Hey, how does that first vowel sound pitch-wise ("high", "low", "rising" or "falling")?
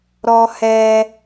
high